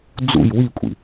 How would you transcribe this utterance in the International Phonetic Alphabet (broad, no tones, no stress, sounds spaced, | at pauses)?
d͡z ṵ j w i kʷʼ ḭ